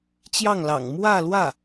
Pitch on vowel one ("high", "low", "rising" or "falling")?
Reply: falling